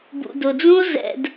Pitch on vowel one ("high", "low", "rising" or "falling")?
low